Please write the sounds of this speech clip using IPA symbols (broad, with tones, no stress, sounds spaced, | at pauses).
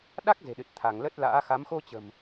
ɗ a˦˥ k̚ z e̤˨˩ ɗ ɨ˨˩ t̚ t̪ʰ a˧˩ ŋ l ə˦˥ t̚ l a̰ː˧˥ x a˨˦ m x o˧ t͡ɕ ə̤˨˩ m